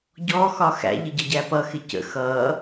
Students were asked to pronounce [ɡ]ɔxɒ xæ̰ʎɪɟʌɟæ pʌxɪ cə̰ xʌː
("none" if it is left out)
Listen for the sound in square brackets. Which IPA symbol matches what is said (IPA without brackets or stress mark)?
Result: ɟ